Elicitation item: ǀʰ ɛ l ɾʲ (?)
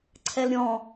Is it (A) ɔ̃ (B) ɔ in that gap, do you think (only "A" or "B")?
A